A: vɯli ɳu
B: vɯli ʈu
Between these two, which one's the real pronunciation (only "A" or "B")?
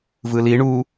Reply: A